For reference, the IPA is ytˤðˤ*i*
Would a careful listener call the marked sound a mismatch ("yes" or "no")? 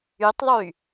yes